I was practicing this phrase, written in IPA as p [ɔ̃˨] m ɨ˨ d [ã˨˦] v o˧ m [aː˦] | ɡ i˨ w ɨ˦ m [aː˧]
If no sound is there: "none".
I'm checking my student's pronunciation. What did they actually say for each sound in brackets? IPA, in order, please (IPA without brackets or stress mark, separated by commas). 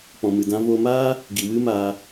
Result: ɔ̃˨, ã˧, aː˦, aː˧